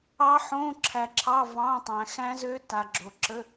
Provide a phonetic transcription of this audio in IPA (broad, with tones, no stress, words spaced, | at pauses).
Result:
ɑ˦˥ħõ˧˥˧ ǁʰæ˨ǁʰɑ˧˥˧ vɑ̃˧˥˧tˤæ̃˨ xæ̃˦˥zø˦˥ta˨ ɡ͡ǁo˨ǁə˧˥˧